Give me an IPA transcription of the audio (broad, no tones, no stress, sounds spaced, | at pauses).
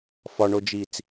f ɒ ɳ o d͡ʒ i t͡s